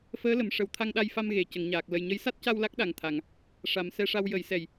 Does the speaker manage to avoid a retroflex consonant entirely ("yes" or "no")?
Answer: no